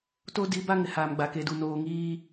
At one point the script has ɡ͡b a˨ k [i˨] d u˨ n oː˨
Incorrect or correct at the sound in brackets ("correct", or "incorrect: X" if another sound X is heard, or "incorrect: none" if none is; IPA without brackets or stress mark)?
incorrect: e˨